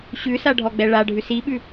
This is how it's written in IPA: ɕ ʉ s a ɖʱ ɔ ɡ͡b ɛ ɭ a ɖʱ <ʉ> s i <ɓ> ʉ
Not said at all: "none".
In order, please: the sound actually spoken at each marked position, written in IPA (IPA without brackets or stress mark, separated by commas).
ʉ, ɓ